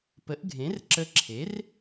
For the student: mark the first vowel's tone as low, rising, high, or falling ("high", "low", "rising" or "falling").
rising